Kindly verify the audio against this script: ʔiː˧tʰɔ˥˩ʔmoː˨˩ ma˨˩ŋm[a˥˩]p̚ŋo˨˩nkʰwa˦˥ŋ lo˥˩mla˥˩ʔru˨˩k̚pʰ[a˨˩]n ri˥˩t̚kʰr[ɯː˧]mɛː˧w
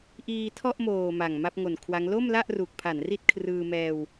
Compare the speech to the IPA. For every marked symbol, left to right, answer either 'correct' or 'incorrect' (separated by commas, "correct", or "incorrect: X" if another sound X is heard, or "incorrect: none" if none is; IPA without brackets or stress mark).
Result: correct, incorrect: a˩˦, correct